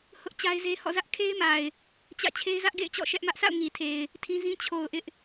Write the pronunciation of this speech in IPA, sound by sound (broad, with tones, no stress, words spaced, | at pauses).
hʊ˦ʔ t͡ɕa˦ɪ̯ze˦ hɔ̰˦˨zä˦ʔ kʰe˦ɪ̯ma˨ɪ̯ | t͡ɕä̰˦˨ t͡ɕʰe˦ɪ̯zä˦ʔɡḛ˦˨ɪ̯t͡ɕɔ̰˦˨ ʃɛ˦ʔmä˦ʔ sa̰˦˨ʊ̯ŋi˨tʰe˨ɪ̯ | tʰĩ˦zĩ˦ t͡ɕʰo˨ʊ̯ ʔɪ˦ʔ